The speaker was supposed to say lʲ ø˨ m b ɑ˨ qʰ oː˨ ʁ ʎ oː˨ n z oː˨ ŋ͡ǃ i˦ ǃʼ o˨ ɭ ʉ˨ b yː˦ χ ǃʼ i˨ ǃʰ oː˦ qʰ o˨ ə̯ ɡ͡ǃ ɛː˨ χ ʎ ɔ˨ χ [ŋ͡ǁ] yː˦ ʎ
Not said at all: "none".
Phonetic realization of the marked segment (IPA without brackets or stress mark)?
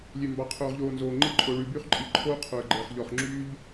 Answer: ŋ͡ǁ